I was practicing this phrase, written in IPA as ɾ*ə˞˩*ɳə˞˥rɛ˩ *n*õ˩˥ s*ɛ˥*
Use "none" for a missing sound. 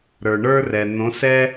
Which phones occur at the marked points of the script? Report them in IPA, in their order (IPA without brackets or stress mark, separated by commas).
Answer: ə˞˩, n, ɛ˥